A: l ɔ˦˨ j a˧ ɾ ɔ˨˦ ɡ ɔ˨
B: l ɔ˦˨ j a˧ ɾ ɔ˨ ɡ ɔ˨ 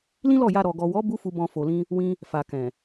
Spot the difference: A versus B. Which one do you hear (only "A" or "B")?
B